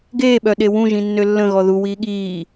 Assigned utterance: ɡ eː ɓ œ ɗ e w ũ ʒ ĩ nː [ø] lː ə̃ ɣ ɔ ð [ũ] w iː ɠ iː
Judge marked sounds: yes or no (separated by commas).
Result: yes, no